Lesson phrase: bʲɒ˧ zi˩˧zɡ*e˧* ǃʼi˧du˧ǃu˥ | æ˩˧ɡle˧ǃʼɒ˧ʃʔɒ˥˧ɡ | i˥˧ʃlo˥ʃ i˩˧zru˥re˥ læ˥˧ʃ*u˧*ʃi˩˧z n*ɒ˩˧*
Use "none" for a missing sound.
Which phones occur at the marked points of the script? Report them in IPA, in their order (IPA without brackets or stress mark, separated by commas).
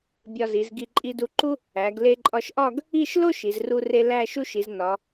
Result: i˧, u˥, ɒ˩˧